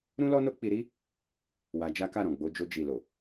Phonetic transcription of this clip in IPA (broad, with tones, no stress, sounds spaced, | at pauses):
ɾ ũ˦ l ɔ˦ n o˦ k͡p i˧ ɾ i˦ | w a˧ d͡ʒ a˦ k a˦˨ ɾ ɔ̃˨ ɡ͡b o˧ d͡ʒ o˧ d͡ʒ i˨ l o˨